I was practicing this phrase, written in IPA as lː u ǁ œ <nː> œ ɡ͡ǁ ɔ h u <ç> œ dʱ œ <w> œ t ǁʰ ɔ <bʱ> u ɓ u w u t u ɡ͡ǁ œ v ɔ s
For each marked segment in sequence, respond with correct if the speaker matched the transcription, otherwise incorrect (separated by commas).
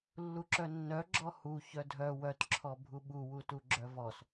correct, correct, correct, correct